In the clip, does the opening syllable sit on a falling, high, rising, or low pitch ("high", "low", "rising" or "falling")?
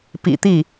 low